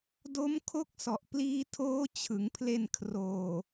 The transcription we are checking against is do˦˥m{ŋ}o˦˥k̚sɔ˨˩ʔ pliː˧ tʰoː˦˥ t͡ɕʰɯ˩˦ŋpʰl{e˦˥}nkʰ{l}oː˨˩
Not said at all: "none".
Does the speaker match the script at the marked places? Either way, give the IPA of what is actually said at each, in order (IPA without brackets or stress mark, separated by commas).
kʰ, e˧, r